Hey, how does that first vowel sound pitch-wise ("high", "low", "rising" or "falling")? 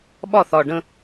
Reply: falling